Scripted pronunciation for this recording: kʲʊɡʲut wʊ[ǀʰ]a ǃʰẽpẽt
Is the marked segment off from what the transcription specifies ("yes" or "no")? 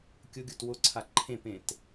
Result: no